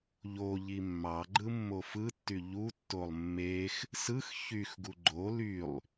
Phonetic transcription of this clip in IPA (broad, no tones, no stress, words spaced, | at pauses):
ʎo ʎimːɑɡ͡ǃɯ mːofɯtːy ʎutːolˠ mːex | sɯx çyxɡu ɡ͡ǃo lylˠ